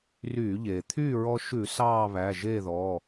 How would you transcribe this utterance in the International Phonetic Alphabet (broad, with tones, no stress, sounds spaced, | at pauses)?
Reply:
r yː˧˩˧ ʎ eː˩ t̪ʰ yː˥˨ ɹ ɔ˧ ʃ ʉ˧˩˧ s ɑː˥˨ β æ˩˧˩ ʒ eː˥˨ ð ɔ˩˧˩